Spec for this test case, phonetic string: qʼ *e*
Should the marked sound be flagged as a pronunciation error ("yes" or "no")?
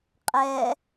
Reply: yes